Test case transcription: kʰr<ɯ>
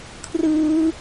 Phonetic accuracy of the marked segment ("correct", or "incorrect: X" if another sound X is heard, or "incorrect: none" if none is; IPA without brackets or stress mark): correct